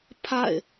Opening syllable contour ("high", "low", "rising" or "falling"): falling